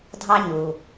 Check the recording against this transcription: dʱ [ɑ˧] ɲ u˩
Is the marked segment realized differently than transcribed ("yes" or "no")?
no